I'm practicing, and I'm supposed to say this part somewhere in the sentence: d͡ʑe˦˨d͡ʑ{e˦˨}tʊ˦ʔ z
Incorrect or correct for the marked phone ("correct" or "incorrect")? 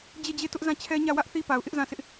correct